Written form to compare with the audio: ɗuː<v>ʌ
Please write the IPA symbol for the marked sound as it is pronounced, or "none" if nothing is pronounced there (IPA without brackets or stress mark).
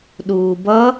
b